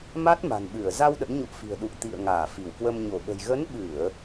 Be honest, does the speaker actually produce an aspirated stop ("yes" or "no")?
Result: no